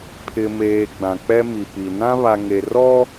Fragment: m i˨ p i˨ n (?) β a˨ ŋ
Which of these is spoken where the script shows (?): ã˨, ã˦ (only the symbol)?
ã˦